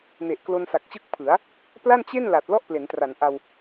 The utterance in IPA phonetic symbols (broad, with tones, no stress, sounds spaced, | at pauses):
n e˨˩ ʔ k l o˧ n s a˨˩ k̚ t͡ɕ ɯ˦˥ k̚ pʰ ɯ˩˦ a̯ | p l a˥˩ n t͡ɕ e˥˩ n l a˨˩ t̚ l ɔ˥˩ ʔ p l e˩˦ n t r a˩˦ n ʔ a˧ w